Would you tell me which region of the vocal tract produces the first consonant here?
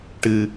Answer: retroflex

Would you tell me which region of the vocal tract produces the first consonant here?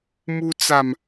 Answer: lips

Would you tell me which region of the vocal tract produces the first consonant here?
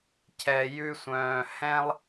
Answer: palate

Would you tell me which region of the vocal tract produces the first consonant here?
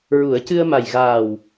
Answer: tongue tip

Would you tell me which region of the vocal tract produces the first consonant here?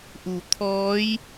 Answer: throat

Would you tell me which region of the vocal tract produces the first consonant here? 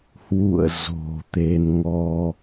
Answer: throat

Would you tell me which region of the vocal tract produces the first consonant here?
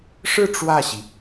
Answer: retroflex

